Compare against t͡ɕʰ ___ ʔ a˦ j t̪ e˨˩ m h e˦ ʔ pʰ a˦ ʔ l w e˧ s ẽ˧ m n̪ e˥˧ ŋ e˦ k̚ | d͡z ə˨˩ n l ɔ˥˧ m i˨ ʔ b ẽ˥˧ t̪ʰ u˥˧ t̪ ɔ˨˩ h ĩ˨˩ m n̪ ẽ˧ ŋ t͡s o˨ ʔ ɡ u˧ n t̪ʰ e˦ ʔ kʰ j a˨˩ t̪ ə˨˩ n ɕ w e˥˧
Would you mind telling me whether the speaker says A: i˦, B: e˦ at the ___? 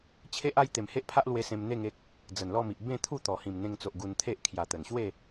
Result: B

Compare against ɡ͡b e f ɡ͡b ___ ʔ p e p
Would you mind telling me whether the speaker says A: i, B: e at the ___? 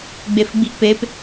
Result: A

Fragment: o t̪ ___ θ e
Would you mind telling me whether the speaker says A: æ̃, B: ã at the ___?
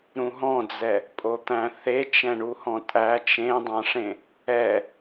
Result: A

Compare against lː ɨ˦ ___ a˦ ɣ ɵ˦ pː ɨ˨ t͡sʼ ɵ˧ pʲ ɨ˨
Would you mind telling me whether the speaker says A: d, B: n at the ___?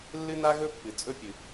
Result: B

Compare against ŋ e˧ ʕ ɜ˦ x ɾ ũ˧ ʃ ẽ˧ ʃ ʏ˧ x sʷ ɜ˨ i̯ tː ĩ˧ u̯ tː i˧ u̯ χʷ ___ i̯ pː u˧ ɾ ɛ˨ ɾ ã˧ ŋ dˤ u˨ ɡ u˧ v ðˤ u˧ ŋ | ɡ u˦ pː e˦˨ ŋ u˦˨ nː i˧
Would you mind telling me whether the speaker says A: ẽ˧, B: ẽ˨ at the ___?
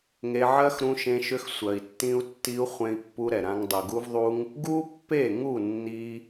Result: A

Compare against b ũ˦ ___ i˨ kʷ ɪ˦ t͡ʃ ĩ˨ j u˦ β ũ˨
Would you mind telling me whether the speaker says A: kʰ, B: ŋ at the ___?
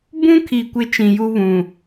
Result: A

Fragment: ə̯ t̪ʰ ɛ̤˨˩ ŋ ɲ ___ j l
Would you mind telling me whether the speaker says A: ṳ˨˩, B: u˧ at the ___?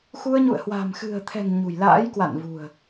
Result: A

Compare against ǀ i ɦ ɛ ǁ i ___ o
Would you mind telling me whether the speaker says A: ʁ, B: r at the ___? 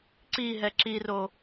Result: B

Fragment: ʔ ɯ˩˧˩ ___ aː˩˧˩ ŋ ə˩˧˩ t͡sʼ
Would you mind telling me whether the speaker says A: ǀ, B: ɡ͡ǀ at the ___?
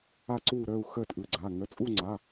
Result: B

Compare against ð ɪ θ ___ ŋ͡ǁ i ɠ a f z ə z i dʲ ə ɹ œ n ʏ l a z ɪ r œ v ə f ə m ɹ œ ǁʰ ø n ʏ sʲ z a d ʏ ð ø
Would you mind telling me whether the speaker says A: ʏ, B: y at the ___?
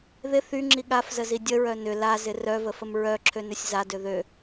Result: B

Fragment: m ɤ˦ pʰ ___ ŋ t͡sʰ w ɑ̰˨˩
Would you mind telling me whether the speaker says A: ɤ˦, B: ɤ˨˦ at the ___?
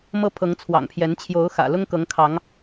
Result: B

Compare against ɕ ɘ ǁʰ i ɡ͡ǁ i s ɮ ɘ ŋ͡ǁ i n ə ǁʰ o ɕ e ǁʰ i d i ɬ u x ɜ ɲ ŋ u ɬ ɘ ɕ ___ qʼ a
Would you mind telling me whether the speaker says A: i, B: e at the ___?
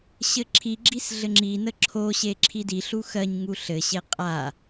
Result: B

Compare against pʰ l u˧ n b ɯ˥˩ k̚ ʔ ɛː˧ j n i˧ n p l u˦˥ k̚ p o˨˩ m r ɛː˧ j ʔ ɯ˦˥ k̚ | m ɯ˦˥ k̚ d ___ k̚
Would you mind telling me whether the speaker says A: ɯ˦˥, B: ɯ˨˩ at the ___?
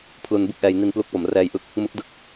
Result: A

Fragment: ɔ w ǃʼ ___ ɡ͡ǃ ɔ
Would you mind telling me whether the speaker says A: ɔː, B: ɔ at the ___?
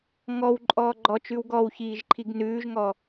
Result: A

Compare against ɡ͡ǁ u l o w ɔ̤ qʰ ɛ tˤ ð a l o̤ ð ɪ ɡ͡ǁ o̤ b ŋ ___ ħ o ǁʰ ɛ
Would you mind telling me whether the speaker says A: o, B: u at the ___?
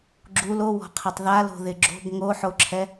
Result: A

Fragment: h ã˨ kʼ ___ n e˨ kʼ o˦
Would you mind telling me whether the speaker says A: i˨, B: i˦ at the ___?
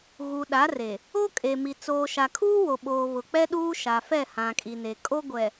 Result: A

